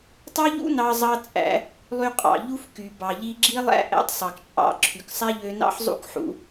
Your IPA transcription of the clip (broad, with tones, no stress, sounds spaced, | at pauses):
tˤ ɑ˥ ʎ ṵ˥ n ɑ˧ zˤ ɑ˧ t͡sʼ æ̰˧ | lˠ y˧ qʼ ɑ̰˩ ʎ u˥ f k y˩ b ɑ˩ ʎ i˧ ɡ͡ǁ i˥ lˠ æ̰˥ ʔ æ̰˥ tˤ sˤ ɑ˩ k t͡ʃʼ ɑ̰˧ ǁʰ y˩ k sˤ æ˥ ʎ ø˧ n ɑ̰˥ ħ zˤ ṵ˥ k ħ ṵ˧